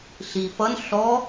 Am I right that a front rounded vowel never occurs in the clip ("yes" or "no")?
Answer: yes